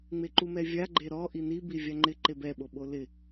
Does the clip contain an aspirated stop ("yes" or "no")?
no